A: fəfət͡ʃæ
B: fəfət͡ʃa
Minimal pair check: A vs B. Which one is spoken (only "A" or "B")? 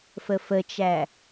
A